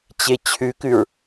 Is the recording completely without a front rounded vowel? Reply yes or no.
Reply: yes